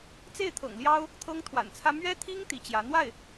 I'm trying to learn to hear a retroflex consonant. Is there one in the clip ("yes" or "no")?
no